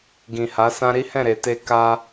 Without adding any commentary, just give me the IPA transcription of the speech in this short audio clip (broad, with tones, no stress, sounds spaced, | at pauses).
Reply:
ɡ ĩ˨ h a˨˦ s ã˦ ɾ i˦ h ɛ̃˦˨ ɾ e˨ t e˧ k a˧